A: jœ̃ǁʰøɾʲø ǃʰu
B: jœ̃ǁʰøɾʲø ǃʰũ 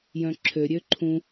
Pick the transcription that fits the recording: B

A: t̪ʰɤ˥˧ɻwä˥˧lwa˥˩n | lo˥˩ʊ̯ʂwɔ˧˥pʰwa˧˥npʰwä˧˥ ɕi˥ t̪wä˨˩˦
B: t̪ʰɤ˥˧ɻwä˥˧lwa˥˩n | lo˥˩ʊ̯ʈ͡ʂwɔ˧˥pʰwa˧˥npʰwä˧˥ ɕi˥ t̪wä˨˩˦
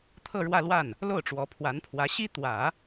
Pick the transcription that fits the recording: B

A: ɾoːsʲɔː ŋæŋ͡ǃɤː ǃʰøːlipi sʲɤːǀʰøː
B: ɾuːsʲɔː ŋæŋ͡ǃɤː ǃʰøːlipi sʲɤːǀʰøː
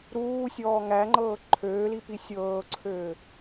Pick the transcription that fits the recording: B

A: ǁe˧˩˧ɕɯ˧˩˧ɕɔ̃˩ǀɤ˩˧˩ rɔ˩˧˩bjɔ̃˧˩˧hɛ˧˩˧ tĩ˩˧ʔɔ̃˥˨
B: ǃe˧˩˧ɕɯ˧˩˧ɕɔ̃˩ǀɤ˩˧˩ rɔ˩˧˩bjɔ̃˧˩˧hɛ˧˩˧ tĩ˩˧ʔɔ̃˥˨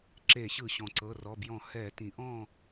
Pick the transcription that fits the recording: A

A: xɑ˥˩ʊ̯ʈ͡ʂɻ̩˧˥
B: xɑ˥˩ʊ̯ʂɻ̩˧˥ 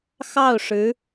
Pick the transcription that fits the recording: B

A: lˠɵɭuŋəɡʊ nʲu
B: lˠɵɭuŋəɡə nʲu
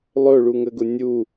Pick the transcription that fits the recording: A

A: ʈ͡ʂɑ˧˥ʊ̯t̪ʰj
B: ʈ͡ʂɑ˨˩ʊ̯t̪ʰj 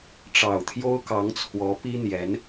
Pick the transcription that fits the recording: B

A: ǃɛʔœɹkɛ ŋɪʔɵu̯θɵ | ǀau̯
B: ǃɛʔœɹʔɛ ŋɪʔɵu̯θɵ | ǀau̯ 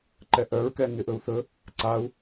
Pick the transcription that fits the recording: A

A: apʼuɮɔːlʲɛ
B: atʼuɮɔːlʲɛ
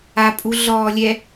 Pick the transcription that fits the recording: A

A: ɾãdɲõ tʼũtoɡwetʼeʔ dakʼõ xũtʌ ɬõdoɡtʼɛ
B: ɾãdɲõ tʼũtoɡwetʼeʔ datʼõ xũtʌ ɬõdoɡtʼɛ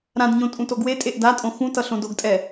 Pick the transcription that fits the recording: B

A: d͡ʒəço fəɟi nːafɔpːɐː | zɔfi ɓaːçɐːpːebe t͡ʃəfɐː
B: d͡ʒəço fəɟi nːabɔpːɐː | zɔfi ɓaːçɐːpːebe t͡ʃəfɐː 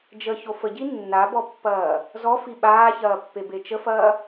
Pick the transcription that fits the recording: B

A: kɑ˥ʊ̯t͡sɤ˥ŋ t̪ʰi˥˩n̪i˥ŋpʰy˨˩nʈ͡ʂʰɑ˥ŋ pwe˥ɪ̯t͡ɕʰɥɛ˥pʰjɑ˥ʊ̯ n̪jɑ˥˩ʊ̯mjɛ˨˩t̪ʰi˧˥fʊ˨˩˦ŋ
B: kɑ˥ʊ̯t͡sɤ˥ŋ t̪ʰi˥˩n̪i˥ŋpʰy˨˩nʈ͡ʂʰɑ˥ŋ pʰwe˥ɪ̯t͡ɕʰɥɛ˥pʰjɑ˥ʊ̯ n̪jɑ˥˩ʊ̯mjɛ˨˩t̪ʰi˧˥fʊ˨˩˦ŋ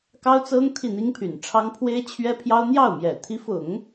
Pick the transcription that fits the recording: B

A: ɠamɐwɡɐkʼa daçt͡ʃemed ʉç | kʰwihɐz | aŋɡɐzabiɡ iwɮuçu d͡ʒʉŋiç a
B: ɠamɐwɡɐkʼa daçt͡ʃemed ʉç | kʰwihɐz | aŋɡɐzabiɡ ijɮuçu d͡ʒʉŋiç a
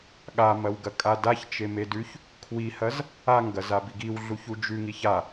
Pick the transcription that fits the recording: A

